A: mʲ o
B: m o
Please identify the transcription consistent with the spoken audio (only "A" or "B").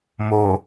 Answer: B